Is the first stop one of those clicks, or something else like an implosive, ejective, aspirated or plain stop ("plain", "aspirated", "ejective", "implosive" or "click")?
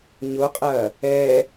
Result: ejective